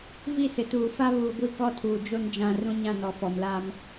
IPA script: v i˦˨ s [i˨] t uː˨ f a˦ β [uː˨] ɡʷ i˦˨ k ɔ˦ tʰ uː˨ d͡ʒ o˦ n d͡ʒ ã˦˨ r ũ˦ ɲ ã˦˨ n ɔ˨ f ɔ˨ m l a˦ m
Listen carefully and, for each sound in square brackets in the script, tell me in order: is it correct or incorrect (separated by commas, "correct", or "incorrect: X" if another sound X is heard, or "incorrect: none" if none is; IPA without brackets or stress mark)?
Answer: incorrect: ɪ˨, correct